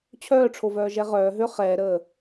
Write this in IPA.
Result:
t͡ɕʰ œː ʈ͡ʂʰ o v œː ʒ ɛ ʁ œː ɦ ø χ ɛː ɾ əː

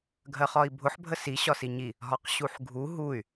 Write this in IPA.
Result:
ɡʱ ɜ χ ɒ i̯ bʱ ʊ ħ bʱ ə s i ɕ ɒ s i ɲ i | ɦ ɒ q ɕ u ħ ɡʱ u ɦ u y̯

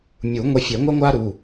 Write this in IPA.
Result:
mʲ u˨˩˦ ŋʷ e˧ fʲ e˨˩˦ ŋʷ ɛ˥ ŋʷ a˥ ɾ u˩˧˩

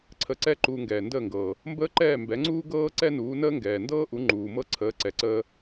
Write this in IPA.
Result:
ǀʰ ə˧ ǀ ɛ˥ ǃ uː˧ ŋ ɡ ɛː˩ n d əː˥˩ ŋ ɡ ɤː˩ | m b əː˥ ǃ ɛː˥˩ m b ɛ˩˥ ŋ͡ǀ uː˥ ɡ ɤː˥ ǀ ɛ˥ n uː˩˥ n əː˥ ŋ ɡ ɛː˩ n d ɤː˥ ʔ u˩˥ ŋ͡ǃ uː˩ m ɤ˥ ǀʰ əː˩˥ ǀ ɛ˩ ǀ əː˧

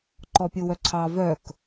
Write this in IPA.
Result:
ǃ ɔ pʲ u w œ ǀʰ ɑ v œ k

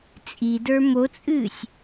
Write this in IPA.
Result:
t͡sʼ i d ə˞ m o t͡sʼ ɨː sʲ

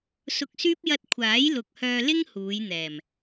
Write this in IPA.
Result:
s ʊ˧ k̚ s yː˥ p̚ j ɐ˥ t̚ kʷʰ aː˨˥ j l ʊ˨ k̚ h œː˧ l ɪ˥ ŋ h uː˨˧ j n̪ ɛː˨˩ m

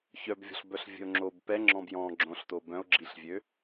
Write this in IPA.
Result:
ç œ b vʲ ɔ̤ ɬ b œ ɬ vʲ ə̤ o̯ ŋ͡ǁ o b p ɛ ŋ͡ǁ ɔ̃ b j ɔ̃ ɡ͡ǁ õ ɬ t o b œ̃ o̯ ɡ͡ǁ i ɬ vʲ ø

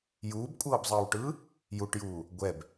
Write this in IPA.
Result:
j uː b kʷʼ ɤː b zˤ ɯː w ʈ ɯː | j u ʈ j uː | ɡʷ ɛ b

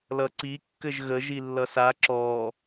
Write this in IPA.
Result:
l ʌ ǀ i kː ɘ ʒ ɣ ə ʒ i lː ʌ s a ǁ ɔ

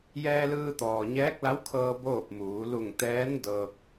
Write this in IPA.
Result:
j ɛː˧ l ɯː˧ t̪ ɔː˩ ɲ ɛː˧˥ k̚ l a˧˥ w kʰ ɤː˧ b oː˥˨ p̚ m uː˩˧ l u˧˩ ŋ t̪ ɛː˧˥ n d ɤː˧ k̚

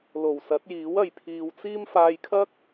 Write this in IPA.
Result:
l o˨˩ w s ɐ˨˥ t̚ j iː˨˥ w ɐ˨ j pʰ iː˨ w t͡s iː˥ m f aː˧ j kʰ ɐ˥ k̚

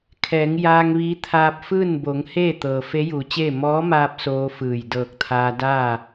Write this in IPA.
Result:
kʰ ɛː˩˧ ŋ j aː˧ ŋ ʋ iː˧˥ t̪ʰ aː˧ p̚ f ɯː˥˨ n b o˩˧ ŋ h eː˥˨ t̪ ɤː˩ f e˧˥ j uː˩˧ t͡ɕ eː˥˨ m ɔː˧˥ m aː˧ p̚ s oː˧˥ f ɯː˧˩ j d ɤː˧˩ k̚ t̪ʰ aː˧ d aː˥˨

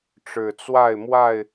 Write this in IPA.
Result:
ʈ͡ʂ ɻ̩˨˩ t͡s w a˥˨ ɪ̯ m w a˥˨ ɪ̯

